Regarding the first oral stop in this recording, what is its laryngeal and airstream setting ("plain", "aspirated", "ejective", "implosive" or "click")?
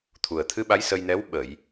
aspirated